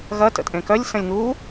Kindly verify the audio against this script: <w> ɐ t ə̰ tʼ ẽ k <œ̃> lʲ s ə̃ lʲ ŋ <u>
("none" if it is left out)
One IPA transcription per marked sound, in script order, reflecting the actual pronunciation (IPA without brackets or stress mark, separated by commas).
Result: ɣ, œ, u